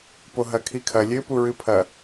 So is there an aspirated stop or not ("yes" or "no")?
yes